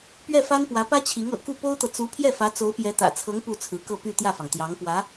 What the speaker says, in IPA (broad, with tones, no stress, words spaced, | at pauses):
pɥɛ˥˩fa˥n pwä˧˥pä˥t͡ɕʰi˧˥ŋ ɤ̰˨˩ku˥˩ po˥ʊ̯t̪ɤ˨ t͡su˧˥ pʰjɛ˥˩fä˧˥ t͡so˧˥ʊ̯pjɛ˧˥t̪ä̰˨˩t͡sʰɤ˧˥ŋ pu˥˩t͡sʰɹ̩˧˥kɤ˥˧ py˥˧ t̪jä˥˩fɑ˩ŋ t̪jɑ˧˥ŋpwä˧˥